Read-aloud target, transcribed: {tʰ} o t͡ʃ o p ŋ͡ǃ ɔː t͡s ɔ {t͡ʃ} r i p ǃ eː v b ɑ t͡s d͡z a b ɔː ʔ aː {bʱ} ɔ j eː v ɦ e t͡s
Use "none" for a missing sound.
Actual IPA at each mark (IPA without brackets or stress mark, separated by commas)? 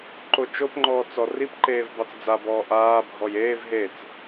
ǃ, none, bʱ